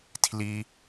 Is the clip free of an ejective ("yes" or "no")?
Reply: yes